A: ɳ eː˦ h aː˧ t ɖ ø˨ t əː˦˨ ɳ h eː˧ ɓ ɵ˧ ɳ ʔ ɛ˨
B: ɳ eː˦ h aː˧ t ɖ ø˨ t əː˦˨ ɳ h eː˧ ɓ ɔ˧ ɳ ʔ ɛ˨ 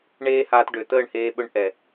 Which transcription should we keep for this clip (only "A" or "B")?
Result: A